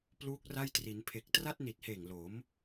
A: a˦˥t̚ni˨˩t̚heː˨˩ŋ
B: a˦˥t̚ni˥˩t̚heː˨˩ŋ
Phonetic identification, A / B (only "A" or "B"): A